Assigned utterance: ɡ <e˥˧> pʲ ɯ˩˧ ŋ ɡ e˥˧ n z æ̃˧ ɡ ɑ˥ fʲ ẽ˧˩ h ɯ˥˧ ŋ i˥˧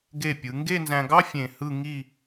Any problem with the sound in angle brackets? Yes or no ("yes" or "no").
yes